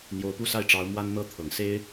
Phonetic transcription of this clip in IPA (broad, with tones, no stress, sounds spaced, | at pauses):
n̪ j o˧˥ ʊ̯ p u˥˧ s a˥˩ ɪ̯ ʈ͡ʂ ɑ˧˥ ʊ̯ m w a˥ n n̪ ɤ˥ t̪ʰ ɤ˨˩ ŋ s e˥ ɪ̯